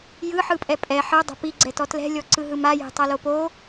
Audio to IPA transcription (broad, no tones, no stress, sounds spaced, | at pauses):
j ɯ ħ ɯ pʼ ɛ pʼ ɛ ħ ɤ dˤ ɛ̤ p i ɡ͡ǀ ɛ t ɔ t l ɛ̤ lʲ ɔ ǀ ɯ ɦ ɯ m a j ɛ̤ tˤ ɤ l o p o